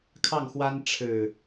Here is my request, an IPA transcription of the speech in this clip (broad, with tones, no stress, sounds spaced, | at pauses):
kʰ ɑ˥˨ ŋ x w a˦ n ʈ͡ʂʰ ɻ̩˨˩